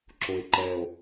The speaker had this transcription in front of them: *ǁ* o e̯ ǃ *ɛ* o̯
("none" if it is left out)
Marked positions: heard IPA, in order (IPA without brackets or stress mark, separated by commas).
ǁ, ɛ